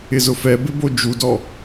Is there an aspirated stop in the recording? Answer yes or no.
no